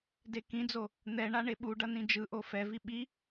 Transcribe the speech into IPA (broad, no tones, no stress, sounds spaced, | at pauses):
d e k ĩ d͡z o | n̪ ɛ ɳ a ɳ e ɓ u ɖ ʌ n ĩ d͡ʒ ɯ ʔ o f ɛ v i ɓ i